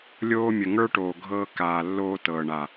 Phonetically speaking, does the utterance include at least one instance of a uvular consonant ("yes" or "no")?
no